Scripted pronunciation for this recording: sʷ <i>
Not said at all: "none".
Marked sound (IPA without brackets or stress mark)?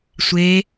e